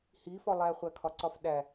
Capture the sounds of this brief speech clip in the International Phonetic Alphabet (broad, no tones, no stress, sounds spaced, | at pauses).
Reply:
h i f ɒ lˠ æ χʷ æ kʰ ɒ ǀ ɒ f ɗ æ